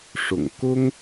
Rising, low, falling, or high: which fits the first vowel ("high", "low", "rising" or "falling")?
low